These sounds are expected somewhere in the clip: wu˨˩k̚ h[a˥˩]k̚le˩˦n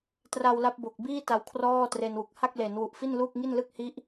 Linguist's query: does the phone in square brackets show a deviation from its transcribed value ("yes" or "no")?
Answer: no